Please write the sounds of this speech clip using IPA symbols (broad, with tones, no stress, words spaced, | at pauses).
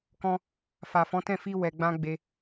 kɔ̃˧ | fa˨fɔ̃˨˦tɛ̃˦˨ fi˧ wɛ˨ ɡ͡bã˧ ɡ͡be˧